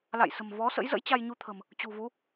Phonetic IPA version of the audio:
la̰˧˨jsə̤˨˩m vɔ˨˦sə̰˧˥jzə̰˧˥j t͡ɕa˧jɲu˧t̪ʰə̤˨˩m | t͡ɕṳ˨˩vu˨˦

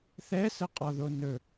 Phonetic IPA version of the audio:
θɛsəqʼɒðo nɵ

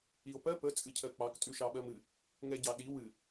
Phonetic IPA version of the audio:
io̯pɜ pə t͡sʼɨcʰɜk͡pɑk tʼʉʃɑɓɜmɨ | ŋɛɟɑɗi wɨ

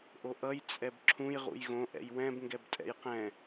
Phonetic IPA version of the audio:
ʔoʔʌj t͡sʼɛbǁʰũj ʁṵjɣõ ʔɛ̰jwɛ̃b ŋɡɛbtʼɛ̰jqɛ̃

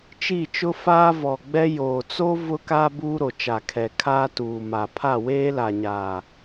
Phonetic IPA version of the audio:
t͡ʃi˦˨t͡ʃʊ˦faː˦ vɔ˨ɡ͡bɛ˦ joː˨t͡so˦ vʊ˦ka˦ buː˦ɾo˨t͡ʃa˨kʰɛ˨ kʰaː˦tuː˨ ma˨ pʰa˦˨weː˦la˨ ɲaː˨

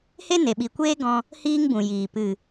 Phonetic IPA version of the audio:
he˦ ne˨ɓi˨ kʷeː˦ɡɔ̃˧ | hiː˦ŋbũ˨jiː˨ pɨ˨

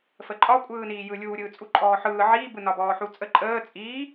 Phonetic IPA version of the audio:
fəǃʼɒkʷʼɯːniː jɯlʲuːɾʲɯː t͡sʼuǃʼɔːħɯː ʕiːbɯ nɒbɔːħut͡sʼə ǃʼəː t͡sʼiː

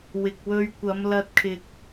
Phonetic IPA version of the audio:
wɪ˨k̚wɵ˧ɥkʷɐ˨˧m lɐ˧t̚kʰɪ˧k̚

